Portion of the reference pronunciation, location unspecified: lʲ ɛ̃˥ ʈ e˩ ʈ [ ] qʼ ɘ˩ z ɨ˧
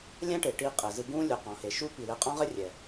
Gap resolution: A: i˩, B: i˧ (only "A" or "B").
B